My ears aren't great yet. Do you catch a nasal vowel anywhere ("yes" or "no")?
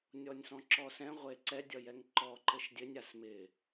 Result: yes